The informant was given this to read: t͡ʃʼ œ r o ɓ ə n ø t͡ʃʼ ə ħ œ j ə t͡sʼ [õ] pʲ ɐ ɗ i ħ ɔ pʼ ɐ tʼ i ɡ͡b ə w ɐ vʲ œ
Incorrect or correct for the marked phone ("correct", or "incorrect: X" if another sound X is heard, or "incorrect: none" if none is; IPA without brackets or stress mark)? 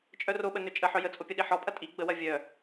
incorrect: o